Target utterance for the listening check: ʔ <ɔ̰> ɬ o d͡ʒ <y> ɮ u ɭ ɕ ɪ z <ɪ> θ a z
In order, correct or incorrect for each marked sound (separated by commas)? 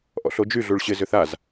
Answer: correct, correct, incorrect